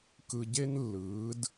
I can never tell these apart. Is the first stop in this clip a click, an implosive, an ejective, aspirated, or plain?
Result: plain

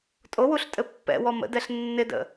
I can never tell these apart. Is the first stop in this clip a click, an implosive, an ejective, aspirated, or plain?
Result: ejective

